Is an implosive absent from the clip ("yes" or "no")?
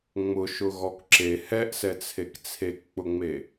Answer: yes